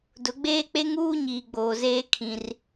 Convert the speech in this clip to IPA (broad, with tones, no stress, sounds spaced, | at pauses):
d ʊ˨˦ ɡ͡b eː˦ k͡p e˦ ŋ uː˦ ɲ iː˨ ɡ͡b oː˨ z eː˦ kʰ ĩ˦ r